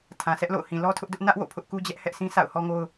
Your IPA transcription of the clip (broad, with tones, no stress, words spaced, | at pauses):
tʰã˨sɛ˦ʔlo̰˦˨ʊ̯ hĩ˨lɔ˦tʰʊ˦ʔdʊ˦ʔ nä˦ʔwo̰˦˨ pʰʊ˦ʔku˦ d͡ʑɛ˦ʔ hɛ˦ʔsʰĩ˦ sʰa̰˦˨ʊ̯hɔ˦ŋo˦ʊ̯